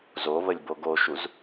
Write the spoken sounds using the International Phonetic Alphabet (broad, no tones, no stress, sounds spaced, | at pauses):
z o β ə lʲ b o ɡ o ʃ u z